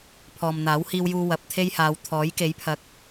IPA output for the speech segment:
pʰɔː˨mn̪aː˨˥whiː˧wjuː˧ wɐ˨p̚t̪ʰe˥jhaː˨˧w t̪ʰɔː˨˥jke˨˥jpʰɐ˨˥k̚

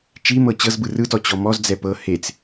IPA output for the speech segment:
t͡ʃimɤ t͡ɕɤzbɯ rɯtɔt͡ɕɔ mɔzd͡zɛ pɤ het͡s

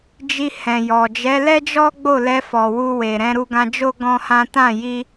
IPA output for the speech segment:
d͡ʒi˧hɛ̃˨jɔ˨ d͡ʒɛ˨˦lɛ˦d͡ʒɔ˦ ɡ͡bo˦˨lɛ˧fɔ˨ wu˧we˨ ɾɛ̃˧ɾu˧ɡã˧d͡ʒo˦ ɡɔ̃˦hã˦ tã˦˨ji˧

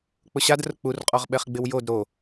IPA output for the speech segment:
k͡pʊɕad rʊk͡pur qʼɔʁɓɛχɡ͡bɪwjod ɾo

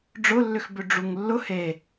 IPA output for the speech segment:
ɖ͡ʐʊlːʏxbʏ ɖ͡ʐuŋlːʊ he

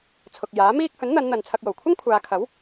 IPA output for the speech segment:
t͡sʰʊ˨k̚jaː˨˥miː˥k̚ hɵ˨˥nn̪ɐ˨˧nn̪ɐ˨n t͡sʰɐ˧k̚jo˨˩w kʷʰɪ˥ŋkʷʰaː˨˧kʰɐ˨˥w

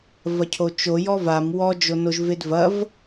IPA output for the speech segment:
vɐcʰot͡ʃo jɔvam wɔ d͡ʒonoʒvedvɐv

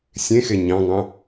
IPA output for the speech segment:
sʲẽxe ɲɑ̃ŋɑ̃

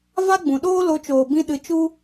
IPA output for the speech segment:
va˦ɡ͡bũ˨ɗoː˦ lo˧t͡ʃoː˨bĩ˧ ɗɨ˧t͡ʃu˦

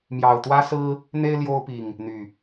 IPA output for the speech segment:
mjɑ˨˩ʊ̯t̪wä˦sɹ̩˦ | n̪e˦ɪ̯ ljo˦ʊ̯pi˨˩ŋ | n̪y˨˩

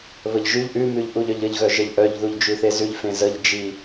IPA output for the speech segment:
βəʎʒʉʎ ʔʉmʉʎ ʔuʎœʎəʎɣœ ʒəʎʔœʎðuʎ d͡ʒʉθezʉʎ fẽzəʎ d͡ʒi

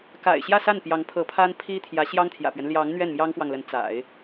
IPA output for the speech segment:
ka̰˨˩ɪ̯ ɕjä˥˧sa˥˩n pjɑ˧˥ŋpʰɤ˧˥pʰa˥n pʰi˥t̪ʰjä˧˥ ɕjɑ˥ŋt̪ʰjä̰˨˩pɥɛ˦n ljɑ˧˥ŋ n̪ɥɛ˥˩nmjɑ˥ŋfwɑ˨ŋlə˧˥n t͡sa̰˨˩˦ɪ̯

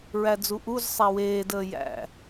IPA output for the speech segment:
ɹæd͡zuʔuz sˤæweːdəː jæ̰

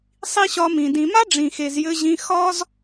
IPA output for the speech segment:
sˤi˦ɕɒ˧mĩ˨ dĩ˨ma˦ ɖ͡ʐĩ˨xe˨zjɘ˧ʑĩ˧ xɒ˦z

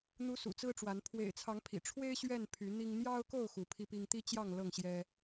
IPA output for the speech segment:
n̪u˨˦ sṵ˨˩t͡sɹ̩˦ʈ͡ʂwa˨˦n pʰwḛ˨˩ɪ̯t͡sʰɑ˨˦ŋpʰḭ˨˩ʈ͡ʂʰwe˦ɪ̯ ɕɥɛ˥˨n pʰy˨˦n̪i˦ŋ n̪jɑ˦ʊ̯ko˥˨ʊ̯ xu˨˦pʰi˦pi˦ŋ t̪i˦t͡ɕjɑ˥˨ŋ lɤ˥˨ŋɕjɛ˦

